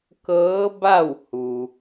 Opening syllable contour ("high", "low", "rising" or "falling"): rising